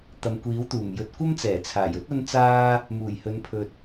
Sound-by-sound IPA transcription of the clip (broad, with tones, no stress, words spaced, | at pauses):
t̪ɐ˨mkʷiː˨˥wt̪uː˨˩mjɵ˨˥t̚ kʷɐ˥mt͡sɛː˨˩t͡sʰaː˨˩jɵ˥t̚ ɐ˥nt͡saː˥ | muː˨˩jhɵ˨˧n pʰɵ˧t̚